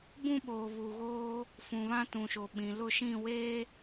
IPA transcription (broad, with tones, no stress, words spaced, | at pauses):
bũ˦ɓoː˨ βuː˨ɣoː˦ | fũ˨βã˦tũ˨ʃo˨ ɓĩ˨ lʊ˦˨ʃĩ˦˨ weː˦